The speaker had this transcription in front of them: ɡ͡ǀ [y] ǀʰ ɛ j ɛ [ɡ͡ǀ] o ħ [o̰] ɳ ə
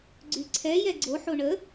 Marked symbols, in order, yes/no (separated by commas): yes, yes, no